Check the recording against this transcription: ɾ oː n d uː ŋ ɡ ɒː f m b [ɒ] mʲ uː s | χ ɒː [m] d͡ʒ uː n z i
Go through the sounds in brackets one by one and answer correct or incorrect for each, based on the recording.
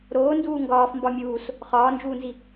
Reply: correct, incorrect

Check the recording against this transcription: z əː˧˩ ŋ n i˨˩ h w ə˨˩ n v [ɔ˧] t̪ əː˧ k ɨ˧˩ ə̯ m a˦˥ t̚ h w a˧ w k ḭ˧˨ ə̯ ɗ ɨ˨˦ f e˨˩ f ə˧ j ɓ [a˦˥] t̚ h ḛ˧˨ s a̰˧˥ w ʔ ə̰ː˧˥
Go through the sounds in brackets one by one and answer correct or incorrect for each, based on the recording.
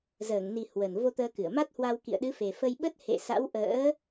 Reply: incorrect, incorrect

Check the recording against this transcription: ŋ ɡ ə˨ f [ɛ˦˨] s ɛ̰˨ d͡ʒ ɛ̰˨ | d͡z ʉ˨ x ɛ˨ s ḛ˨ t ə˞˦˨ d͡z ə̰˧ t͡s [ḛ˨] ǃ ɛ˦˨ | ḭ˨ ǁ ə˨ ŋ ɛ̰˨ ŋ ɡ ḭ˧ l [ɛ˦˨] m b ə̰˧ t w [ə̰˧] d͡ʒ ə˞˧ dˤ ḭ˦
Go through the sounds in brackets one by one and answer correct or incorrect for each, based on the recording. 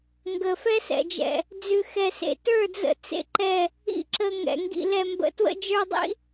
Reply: incorrect, incorrect, incorrect, correct

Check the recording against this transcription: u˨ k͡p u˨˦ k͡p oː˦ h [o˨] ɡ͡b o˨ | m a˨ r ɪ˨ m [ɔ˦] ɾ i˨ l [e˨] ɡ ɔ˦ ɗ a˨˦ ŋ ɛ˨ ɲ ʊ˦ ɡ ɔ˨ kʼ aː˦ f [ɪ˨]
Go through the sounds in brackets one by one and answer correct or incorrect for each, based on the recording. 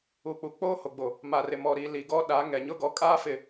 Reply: correct, incorrect, incorrect, correct

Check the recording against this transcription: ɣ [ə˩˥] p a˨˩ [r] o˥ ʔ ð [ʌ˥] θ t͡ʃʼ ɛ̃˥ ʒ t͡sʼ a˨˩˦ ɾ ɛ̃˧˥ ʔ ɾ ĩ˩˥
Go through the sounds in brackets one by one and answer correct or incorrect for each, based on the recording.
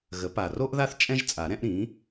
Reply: correct, correct, incorrect

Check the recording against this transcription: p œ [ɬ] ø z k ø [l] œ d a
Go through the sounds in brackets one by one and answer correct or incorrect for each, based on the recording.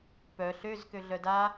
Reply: correct, incorrect

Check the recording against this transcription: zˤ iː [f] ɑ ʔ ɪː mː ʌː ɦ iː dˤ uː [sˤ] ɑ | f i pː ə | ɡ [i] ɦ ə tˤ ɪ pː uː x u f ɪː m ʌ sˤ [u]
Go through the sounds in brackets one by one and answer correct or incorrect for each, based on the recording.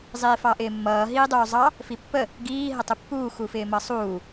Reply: correct, incorrect, incorrect, incorrect

